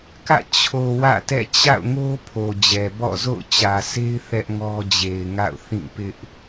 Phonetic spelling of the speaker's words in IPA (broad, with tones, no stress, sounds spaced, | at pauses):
k ä̰˦˨ t͡ɕʰ o˨ w ä̰˦˨ t ɛ̰˦˨ t͡ɕ a̰˦˨ ʊ̯ ŋ o˦ pʰ o˨ d͡ʑ ɛ˨ b ɔ̰˦˨ z o̰˦˨ ʊ̯ t͡ɕ ä˨ sʰ e˦ ɪ̯ θ ɛ˦ ʔ ŋ ɔ˦ d͡ʑ e˨ ɪ̯ ŋ a̰˦˨ ʊ̯ θ ĩ˦˨ p ɪ˦ ʔ